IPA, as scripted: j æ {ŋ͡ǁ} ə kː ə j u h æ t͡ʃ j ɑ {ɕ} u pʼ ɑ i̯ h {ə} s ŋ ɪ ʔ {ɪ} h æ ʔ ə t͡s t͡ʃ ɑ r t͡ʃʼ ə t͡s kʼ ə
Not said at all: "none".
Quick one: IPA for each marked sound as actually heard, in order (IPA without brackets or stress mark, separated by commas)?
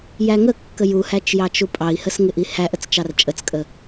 ŋ, t͡ʃ, ə, i